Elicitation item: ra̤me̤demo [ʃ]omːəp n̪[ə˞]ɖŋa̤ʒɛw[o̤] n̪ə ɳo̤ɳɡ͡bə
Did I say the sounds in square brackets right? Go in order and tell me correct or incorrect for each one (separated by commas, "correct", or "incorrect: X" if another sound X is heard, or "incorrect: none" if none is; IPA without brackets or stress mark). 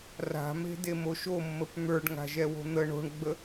correct, correct, correct